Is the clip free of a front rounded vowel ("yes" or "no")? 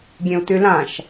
no